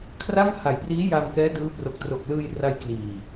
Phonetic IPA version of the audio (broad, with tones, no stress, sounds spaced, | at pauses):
kʰ r a˥˩ ŋ h a˩˦ j p r iː˦˥ j a˧ m k ɛː˦˥ d ɯː˦˥ p r o˨˩ k̚ t r o˨˩ k̚ l ɯː˧ j r a˧ j k l iː˨˩